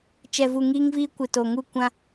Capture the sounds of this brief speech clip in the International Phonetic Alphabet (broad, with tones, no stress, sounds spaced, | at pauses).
t͡ʃ ɛ˨ v u˨ ŋ iː˦ ŋ v iː˦ kʷ ɪ˨ t o˨ ŋ u˦˨ kʷ ã˦